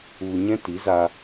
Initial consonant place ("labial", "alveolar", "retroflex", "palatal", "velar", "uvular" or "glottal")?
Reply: palatal